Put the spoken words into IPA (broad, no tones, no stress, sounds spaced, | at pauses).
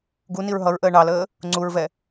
ɡ u n i ɹ ɦ ʌ ɹ ʔ əː ɳ ɑ l əː | ŋ͡ǀ u ɹ v ɛ